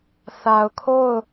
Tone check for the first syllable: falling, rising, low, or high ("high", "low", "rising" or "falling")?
low